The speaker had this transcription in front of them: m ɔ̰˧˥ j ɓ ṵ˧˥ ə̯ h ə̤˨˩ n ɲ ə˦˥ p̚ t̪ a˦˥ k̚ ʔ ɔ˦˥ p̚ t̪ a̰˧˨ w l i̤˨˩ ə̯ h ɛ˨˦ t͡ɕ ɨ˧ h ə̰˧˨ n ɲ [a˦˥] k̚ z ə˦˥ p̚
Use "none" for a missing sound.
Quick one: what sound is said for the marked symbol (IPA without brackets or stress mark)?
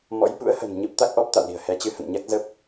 a˦˥